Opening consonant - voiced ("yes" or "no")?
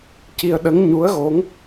no